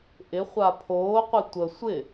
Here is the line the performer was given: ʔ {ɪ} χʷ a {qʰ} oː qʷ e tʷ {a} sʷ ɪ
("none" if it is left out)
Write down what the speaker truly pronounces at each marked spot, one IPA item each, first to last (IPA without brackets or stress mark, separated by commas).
ɪ, pʰ, ə